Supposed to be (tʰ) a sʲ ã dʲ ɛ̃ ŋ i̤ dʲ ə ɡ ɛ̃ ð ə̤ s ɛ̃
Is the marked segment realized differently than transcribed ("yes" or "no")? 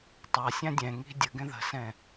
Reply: yes